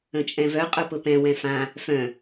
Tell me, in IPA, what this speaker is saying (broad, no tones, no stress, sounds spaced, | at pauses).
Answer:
ə̃ t͡ʃʼ ɛ̃ v œ qʼ ʊ p ʊ p ɛ̃ w ɛ̃ f ã | f œ̃